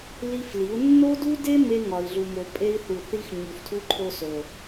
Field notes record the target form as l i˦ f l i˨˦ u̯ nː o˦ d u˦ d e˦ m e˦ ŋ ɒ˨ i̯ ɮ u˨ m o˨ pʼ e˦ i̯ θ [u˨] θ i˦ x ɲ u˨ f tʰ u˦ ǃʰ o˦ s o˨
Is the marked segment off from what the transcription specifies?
no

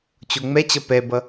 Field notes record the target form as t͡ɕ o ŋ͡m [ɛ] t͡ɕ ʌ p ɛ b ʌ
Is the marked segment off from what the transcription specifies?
no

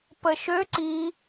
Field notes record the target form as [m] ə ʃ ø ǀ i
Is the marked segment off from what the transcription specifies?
yes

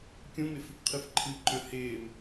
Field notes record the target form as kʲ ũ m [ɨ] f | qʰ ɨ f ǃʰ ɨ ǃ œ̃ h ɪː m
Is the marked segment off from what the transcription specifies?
yes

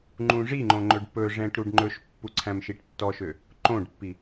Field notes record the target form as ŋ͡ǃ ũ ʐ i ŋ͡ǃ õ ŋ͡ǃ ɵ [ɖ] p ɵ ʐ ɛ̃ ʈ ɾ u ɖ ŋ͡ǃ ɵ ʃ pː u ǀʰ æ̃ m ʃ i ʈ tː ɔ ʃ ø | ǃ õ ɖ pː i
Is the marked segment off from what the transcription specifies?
no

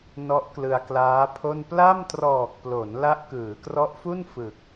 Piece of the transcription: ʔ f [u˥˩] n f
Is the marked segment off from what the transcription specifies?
no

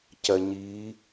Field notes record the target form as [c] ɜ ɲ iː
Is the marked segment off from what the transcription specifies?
no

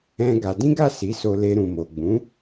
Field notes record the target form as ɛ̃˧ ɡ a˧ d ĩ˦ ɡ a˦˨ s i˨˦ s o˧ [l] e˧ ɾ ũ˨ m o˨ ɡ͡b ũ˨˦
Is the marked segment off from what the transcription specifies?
no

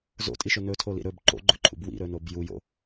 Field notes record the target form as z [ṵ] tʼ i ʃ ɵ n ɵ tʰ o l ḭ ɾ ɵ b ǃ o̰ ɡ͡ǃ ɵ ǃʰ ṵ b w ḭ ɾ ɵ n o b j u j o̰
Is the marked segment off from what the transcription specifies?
yes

